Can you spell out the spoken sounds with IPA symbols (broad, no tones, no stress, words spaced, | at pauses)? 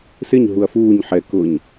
sɪɲ ɦuɐ̯fuːɲ ħɛ kʊɲ